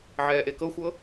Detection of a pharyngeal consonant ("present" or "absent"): present